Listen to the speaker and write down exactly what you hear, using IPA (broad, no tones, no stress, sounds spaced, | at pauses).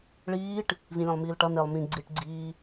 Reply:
ɭ iː ʈ | v ĩ lʲ ẽ lˠ m iː l ʈ ʌ n e lˠ m ĩ ɡ͡ǀ i ʈ ɡ͡ǀ iː